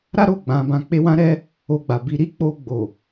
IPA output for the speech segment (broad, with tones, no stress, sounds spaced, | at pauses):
ɾ a˦ ɾ o˦˨ ɡ͡b ã˨˦ b ã˧ k͡p e˦ w ã˦ ɾ ɛ˦ | o˧ ɡ͡b a˨ b i˧ ɾ i˦ k͡p o˧ ɡ͡b o˨